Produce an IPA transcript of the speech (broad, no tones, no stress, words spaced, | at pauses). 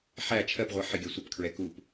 ħæ t͡ʃʰɜpʁʷɛ ħɪɡʲɜ sʷəpkʰɹɛ kup